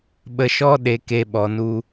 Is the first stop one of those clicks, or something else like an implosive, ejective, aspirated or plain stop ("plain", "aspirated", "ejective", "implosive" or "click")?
implosive